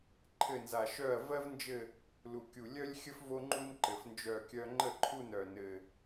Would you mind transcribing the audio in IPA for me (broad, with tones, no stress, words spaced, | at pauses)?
ǃʰɘ˦˨nza˨˩ ʃœ˦˨ɐ̯vɜ˥vnd͡ʒɘ˦˨ | lu˨˩kʲu˨˩ lʲœ˥lʲxʲə˥f vo˥ŋ͡ǃu˥n ǃɘ˨˩fnd͡ʒœ˦˨kʲœ˥ ŋ͡ǃə˦˨ǃʰu˦˨n œ˨˩ nɘ˨˩